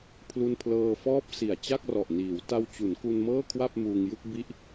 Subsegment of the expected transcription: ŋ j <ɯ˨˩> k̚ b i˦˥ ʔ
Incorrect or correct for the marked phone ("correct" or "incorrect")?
incorrect